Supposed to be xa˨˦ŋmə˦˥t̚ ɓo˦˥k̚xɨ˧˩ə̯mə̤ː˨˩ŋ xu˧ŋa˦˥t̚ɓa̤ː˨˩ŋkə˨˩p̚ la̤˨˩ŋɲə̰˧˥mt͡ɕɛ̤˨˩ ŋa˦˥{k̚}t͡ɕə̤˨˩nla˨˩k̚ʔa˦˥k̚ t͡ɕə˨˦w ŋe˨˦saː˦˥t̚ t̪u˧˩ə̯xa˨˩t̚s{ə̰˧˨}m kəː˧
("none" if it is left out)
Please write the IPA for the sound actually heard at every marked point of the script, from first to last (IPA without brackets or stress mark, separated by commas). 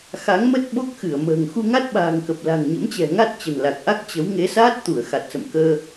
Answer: t̚, ə̰˧˨